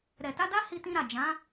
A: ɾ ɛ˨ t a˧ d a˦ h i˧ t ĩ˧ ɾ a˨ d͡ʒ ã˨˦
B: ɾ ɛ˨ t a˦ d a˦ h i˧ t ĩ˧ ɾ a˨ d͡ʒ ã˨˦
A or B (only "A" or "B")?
A